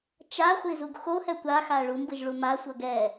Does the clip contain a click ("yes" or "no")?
no